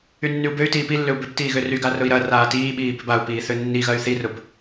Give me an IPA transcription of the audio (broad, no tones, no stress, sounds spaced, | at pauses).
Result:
y nː y u̯ b ø y̯ t iː p i lː ʏ u̯ b ʏ b t iː ɣ ø r y ɡ a r ʊ i̯ ɾ ɐ r aː t iː ɓ iː b ʏ b a u̯ p iː θ ø nː i ɣ ɐ y̯ θ i r ʊ b